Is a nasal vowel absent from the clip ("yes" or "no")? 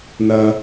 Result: yes